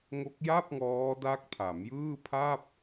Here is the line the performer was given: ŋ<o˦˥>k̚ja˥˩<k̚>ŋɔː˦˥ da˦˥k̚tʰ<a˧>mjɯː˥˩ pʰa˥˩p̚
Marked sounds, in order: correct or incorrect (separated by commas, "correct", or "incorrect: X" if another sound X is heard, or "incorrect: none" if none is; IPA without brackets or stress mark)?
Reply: correct, incorrect: p̚, incorrect: a˩˦